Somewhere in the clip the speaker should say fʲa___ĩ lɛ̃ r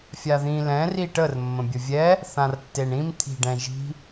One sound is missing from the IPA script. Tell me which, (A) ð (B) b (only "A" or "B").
A